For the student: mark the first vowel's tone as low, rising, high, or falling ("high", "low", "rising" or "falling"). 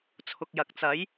low